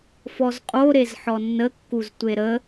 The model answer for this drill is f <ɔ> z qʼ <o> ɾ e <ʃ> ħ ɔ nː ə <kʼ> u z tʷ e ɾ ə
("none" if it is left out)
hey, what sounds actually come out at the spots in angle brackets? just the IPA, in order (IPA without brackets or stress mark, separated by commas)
ɔ, o, z, kː